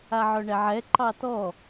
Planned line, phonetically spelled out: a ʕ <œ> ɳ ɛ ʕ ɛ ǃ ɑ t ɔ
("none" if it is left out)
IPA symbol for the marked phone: œ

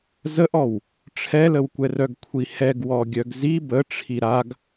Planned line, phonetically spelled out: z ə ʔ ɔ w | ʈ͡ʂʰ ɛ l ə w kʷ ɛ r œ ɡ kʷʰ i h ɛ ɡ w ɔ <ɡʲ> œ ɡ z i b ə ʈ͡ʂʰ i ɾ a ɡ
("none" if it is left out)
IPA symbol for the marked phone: ɡʲ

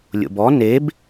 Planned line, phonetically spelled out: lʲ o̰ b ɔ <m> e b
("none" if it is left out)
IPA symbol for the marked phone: n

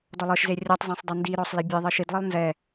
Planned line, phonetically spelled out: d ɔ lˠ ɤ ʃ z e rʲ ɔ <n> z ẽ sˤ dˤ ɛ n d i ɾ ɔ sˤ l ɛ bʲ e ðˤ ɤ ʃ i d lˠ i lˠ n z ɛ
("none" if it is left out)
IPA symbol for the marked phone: tˤ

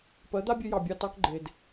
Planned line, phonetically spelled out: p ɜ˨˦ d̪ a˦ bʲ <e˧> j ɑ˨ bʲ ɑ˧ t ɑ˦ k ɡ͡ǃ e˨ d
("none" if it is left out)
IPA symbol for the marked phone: e˧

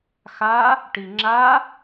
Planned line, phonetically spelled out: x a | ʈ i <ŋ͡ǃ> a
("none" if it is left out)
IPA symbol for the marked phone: ŋ͡ǁ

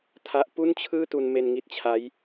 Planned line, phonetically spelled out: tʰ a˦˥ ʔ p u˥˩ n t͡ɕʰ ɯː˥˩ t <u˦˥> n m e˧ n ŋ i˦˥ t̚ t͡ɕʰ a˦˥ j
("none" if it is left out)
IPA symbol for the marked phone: u˧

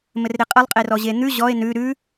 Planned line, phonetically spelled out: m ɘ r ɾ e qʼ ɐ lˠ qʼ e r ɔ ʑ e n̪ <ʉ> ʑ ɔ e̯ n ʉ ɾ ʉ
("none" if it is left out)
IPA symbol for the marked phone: ʉ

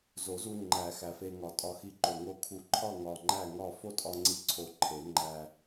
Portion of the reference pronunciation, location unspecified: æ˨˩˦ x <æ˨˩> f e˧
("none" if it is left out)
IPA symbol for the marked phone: æ˨˩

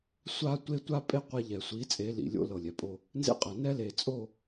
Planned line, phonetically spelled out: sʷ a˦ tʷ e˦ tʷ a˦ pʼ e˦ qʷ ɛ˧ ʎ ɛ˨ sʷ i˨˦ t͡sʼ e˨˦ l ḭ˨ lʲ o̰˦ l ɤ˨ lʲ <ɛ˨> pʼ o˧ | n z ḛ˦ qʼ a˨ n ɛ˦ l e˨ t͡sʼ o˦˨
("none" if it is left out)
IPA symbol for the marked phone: ɛ˨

